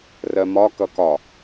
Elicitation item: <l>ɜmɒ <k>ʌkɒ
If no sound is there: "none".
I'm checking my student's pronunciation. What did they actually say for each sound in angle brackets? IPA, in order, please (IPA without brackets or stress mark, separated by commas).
r, k